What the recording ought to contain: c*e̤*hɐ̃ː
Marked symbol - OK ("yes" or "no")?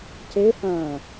no